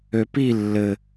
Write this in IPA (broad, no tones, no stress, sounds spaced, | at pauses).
ø p i lː ɘ